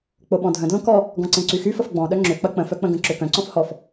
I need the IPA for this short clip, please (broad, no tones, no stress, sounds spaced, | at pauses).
k͡p o ɓ ɔ̃ dʱ ə̃ d l õ k ɔ | ɡ ɔ̃ ǀ ẽ ǀ y x y f ə f ɡ͡b ɔ̃ ɗ œ ŋ͡ǁ ʏ k͡p ɐ k͡p ə̃ f œ k͡p ə̃ ɡ ə̃ ǁ ʏ k œ̃ ǀ ɔ̃ f h ɔ f